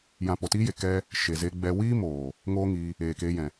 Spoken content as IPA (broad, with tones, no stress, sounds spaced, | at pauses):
j ã˧ p o˨ t iː˦ j e˨ k ɛ˦ | ʃ e˨ z e˧ ɡ͡b ɛ˧ w iː˦ m oː˨ | ŋ oː˦ ŋ iː˧ | eː˨ k eː˧ j ɛ̃˨